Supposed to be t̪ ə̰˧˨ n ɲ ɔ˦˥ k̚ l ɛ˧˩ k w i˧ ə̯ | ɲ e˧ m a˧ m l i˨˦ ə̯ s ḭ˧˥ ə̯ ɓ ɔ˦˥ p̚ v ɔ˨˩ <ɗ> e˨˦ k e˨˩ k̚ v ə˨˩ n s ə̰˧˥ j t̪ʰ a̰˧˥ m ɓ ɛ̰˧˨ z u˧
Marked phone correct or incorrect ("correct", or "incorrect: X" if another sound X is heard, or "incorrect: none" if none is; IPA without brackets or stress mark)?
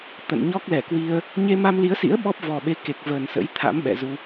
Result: incorrect: ɓ